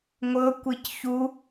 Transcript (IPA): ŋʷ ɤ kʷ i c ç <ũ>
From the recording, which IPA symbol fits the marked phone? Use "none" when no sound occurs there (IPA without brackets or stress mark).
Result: u